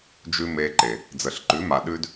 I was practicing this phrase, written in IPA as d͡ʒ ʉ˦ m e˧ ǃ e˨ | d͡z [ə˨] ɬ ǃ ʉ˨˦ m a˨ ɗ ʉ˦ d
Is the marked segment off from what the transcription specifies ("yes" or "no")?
no